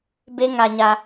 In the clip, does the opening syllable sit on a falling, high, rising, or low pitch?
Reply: high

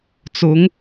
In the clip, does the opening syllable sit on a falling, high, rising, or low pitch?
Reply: rising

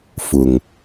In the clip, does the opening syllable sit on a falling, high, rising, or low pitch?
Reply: low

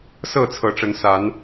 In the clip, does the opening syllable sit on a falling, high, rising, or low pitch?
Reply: falling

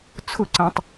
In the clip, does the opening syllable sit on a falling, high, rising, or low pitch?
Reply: falling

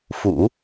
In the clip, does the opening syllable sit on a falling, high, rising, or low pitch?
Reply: low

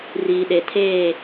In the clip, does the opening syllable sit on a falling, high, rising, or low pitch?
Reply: low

